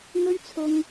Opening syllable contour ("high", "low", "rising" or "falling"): high